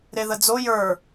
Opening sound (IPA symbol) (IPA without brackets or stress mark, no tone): ɾ